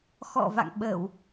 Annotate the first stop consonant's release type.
implosive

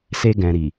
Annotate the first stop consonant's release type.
plain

